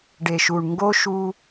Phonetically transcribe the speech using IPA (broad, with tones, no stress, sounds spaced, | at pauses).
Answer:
ɖ e˨ ʃ u˨ ɳ ŋ ɡ o˦ ʃ u˦